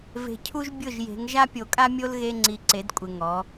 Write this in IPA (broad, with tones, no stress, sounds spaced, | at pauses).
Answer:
v e̤˨ cʰ u˦ ʒ bʲ ʊ˥˨ ʒ j e̤˨˦ ŋ ʒ a˦ pʲ o˨ kʼ a˦ mʲ o˦ l ɣ e˦ ŋ͡ǀ i˨ ǀ e˨˦ d kʷʼ ɪ˨ ŋ ɔ˨˦